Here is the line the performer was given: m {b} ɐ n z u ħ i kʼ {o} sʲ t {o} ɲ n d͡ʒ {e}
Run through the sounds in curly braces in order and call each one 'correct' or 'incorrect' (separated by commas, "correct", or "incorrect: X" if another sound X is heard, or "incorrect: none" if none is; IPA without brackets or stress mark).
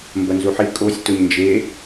correct, correct, correct, correct